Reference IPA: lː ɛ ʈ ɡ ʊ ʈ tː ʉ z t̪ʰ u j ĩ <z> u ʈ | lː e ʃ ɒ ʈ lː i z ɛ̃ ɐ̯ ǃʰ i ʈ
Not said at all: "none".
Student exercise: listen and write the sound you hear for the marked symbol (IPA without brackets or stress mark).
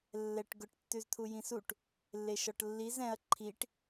s